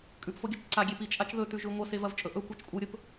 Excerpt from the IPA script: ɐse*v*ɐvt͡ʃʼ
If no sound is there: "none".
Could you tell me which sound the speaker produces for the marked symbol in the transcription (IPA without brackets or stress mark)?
v